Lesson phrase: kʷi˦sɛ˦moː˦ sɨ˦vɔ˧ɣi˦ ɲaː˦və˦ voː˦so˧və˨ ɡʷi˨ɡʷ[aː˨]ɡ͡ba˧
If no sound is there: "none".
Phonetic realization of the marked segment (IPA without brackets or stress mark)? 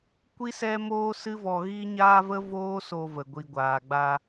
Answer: aː˨